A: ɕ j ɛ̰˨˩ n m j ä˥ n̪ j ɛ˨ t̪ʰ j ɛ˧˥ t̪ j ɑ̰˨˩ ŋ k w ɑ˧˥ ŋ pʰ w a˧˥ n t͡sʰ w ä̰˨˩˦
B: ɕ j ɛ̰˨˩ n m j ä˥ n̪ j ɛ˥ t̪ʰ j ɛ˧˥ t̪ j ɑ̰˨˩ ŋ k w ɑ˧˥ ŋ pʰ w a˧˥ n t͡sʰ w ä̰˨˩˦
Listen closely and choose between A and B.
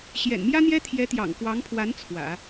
B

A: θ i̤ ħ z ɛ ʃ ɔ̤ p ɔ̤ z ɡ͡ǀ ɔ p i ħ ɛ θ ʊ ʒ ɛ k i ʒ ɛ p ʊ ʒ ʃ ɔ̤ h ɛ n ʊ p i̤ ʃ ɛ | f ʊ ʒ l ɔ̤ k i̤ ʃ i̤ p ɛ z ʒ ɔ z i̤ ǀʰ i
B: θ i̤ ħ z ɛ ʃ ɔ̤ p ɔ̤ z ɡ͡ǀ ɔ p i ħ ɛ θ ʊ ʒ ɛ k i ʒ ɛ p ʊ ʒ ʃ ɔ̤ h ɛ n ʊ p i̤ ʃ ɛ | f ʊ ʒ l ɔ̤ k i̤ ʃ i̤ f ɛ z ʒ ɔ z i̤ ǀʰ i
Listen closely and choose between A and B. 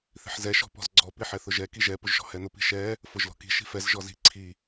B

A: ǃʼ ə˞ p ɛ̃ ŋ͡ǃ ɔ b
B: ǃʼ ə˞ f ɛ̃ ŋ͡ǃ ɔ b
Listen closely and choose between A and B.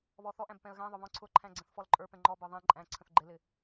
A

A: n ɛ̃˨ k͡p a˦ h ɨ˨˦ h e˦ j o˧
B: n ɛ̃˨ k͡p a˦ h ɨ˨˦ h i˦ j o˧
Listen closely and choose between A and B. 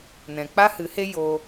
A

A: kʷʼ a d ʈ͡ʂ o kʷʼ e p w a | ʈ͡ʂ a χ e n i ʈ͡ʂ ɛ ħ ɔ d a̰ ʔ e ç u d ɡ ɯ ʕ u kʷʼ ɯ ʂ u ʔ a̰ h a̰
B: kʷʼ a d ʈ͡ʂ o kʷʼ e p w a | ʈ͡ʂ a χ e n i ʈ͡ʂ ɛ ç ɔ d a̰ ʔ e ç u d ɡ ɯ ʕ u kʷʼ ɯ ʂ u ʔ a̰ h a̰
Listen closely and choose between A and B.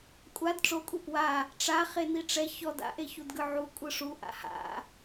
B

